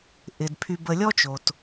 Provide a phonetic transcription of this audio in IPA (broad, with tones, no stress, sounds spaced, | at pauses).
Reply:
ʔ ɪ˩ d pʰ y˨ b ə˨ lʲ ɔ˦ t͡ʃ o˩ t